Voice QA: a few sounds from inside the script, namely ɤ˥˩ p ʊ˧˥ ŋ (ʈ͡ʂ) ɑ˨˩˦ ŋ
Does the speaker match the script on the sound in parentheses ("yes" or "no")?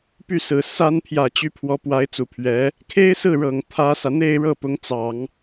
no